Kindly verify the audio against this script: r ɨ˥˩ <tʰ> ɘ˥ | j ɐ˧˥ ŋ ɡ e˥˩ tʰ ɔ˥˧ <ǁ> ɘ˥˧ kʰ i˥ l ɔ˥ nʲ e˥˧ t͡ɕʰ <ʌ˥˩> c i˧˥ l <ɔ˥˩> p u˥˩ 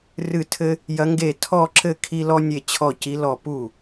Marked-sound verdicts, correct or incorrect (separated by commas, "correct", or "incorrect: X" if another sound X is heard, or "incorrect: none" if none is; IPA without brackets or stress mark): correct, correct, incorrect: ɔ˥˩, correct